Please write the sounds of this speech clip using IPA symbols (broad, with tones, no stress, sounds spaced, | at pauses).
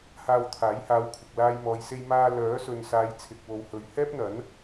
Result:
h aː˧ w t̪ʰ aː˨˥ j h aː˨˧ w kʷʰ ɐ˨ k̚ l aː˧ j m ɔː˨ j s e˧ j m aː˧ l œː˨˥ s ɵ˨ n s aː˨˧ j t͡sʰ ɪ˨ k̚ w o˨ w h ɵ˨ ɥ h ɛː˥ p̚ n̪ ɐ˨˥ n